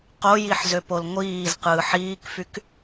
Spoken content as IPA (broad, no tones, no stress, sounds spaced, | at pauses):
q o j i ħ z ø p o l ŋʷ iː z q ɯː ħ iː k f y k